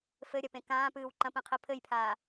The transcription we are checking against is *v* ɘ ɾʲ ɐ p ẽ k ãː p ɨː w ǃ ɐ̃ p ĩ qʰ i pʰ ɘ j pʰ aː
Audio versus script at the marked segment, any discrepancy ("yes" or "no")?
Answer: yes